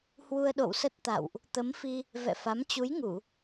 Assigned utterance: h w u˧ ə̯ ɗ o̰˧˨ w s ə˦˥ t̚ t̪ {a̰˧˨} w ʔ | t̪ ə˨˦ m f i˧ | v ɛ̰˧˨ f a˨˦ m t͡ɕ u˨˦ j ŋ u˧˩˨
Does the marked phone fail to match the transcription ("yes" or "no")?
no